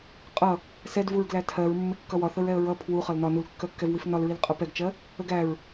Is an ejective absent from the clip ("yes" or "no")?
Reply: no